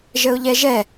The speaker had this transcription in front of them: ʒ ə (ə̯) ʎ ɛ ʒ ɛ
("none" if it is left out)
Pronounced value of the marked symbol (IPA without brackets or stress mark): ʊ̯